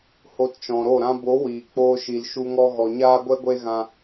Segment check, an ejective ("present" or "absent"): absent